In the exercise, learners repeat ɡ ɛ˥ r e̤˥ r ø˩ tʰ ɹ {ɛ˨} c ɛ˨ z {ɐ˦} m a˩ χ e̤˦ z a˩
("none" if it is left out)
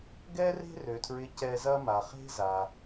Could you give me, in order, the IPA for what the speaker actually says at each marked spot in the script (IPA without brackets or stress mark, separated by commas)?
ɪ˨, ɐ˦